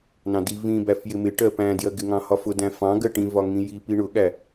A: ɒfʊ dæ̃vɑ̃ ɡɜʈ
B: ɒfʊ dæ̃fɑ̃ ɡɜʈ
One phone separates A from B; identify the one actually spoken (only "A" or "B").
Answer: B